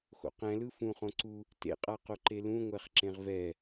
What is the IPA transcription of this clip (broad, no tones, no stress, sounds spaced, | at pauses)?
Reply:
x o̰ q ɛ̃ l ɯ f ũ χ õ ǀ u | t ḛ qʼ a q o ǃ e l ũ ŋʷ ɛ χ ǁ ẽ ʁ v ɛ